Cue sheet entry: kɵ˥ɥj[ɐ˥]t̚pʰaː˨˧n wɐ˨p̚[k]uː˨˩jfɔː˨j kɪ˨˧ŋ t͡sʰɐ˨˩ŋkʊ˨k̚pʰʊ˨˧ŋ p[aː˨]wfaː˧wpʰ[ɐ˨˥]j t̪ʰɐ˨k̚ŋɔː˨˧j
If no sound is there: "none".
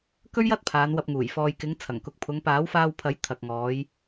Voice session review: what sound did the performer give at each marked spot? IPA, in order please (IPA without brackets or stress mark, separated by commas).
ɐ˥, ŋ, aː˨˥, ɐ˨˥